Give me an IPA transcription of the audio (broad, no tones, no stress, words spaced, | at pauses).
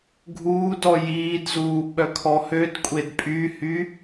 ɡʱuːdɔ jiːdzuː ɓœkʰɔhødkʷʼed pʼyhy